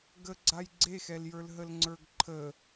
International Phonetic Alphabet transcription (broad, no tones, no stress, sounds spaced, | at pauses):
ɡ ə ɡ͡ǀ a j ɡ͡ǀ e x ɛ l j ə˞ l ɦ ə l ŋ͡ǀ ə˞ ɡ ǃʰ ə